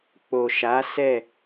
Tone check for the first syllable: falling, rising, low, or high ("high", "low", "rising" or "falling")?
low